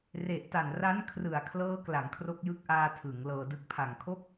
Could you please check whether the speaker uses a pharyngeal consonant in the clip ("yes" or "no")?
no